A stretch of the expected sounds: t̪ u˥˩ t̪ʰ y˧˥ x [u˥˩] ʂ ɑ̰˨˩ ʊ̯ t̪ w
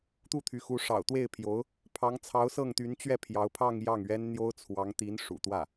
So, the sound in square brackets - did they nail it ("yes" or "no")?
no